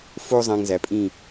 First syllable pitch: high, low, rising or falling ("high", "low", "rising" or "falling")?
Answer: high